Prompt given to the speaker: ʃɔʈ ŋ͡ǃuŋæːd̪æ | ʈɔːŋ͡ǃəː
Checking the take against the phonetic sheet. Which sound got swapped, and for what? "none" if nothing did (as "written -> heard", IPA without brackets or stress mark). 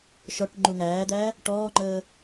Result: none